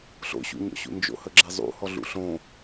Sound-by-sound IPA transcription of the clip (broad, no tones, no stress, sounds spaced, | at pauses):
ɬ o̰ ɕ ṵ ɲ ɔ̰ ɕ ṵ n d͡ʒ o̰ h ə ɡ͡ǁ ɛ zˤ ṵ h ɔ ɮ ṵ ɬ õ